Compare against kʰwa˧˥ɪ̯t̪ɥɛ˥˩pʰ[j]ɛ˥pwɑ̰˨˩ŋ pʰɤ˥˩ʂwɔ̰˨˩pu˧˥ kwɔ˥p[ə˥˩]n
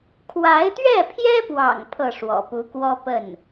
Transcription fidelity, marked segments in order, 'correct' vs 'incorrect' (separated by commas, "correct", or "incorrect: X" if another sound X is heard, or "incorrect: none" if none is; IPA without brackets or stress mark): correct, correct